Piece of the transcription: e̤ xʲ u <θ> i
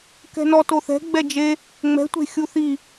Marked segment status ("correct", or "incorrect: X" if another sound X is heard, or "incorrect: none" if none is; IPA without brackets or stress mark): correct